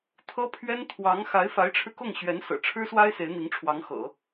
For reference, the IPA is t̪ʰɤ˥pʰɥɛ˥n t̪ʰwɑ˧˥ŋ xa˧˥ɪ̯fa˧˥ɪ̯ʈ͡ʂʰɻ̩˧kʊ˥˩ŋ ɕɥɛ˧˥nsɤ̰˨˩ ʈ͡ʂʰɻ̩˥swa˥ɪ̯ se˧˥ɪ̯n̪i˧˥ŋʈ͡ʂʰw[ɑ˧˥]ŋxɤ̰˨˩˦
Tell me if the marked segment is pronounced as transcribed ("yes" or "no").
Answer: yes